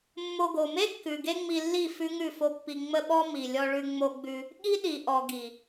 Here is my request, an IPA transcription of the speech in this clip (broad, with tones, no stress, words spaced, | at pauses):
mːo˧ɡo˨ me˦kːʉ˨ ɡe˦ŋ͡mi˧lːi˦˨ fʉ˦ŋʉ˦˨fo˦pːi˧ ŋ͡mə˦ɓɔ˦ mi˨lʲɔ˧ɭʉ˧ ŋ͡mo˧ɡ͡bʉ˧ | ɠi˦ ɗi˨ʔɔ˨ɡi˨